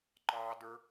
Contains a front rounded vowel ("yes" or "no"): no